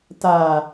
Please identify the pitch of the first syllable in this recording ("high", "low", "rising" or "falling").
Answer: low